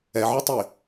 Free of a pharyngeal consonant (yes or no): no